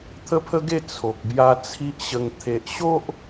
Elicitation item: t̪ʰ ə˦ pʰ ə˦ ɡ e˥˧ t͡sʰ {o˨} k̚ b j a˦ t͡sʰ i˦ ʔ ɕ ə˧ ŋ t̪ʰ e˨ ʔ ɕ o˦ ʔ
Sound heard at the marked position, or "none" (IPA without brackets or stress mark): o˨